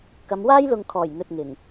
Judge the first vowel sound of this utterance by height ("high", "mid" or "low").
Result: low